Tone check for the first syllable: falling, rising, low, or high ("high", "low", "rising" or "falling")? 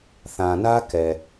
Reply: low